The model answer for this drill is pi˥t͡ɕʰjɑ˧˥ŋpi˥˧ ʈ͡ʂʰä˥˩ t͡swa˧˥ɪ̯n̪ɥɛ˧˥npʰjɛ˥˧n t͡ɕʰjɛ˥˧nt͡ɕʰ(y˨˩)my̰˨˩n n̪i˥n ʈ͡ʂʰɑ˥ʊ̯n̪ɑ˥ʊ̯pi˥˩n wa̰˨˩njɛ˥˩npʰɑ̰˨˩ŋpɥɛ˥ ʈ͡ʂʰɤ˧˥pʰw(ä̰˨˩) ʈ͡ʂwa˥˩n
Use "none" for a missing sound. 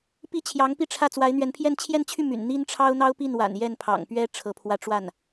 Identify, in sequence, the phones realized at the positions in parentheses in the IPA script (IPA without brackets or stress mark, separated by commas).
y˥˩, ä˥˧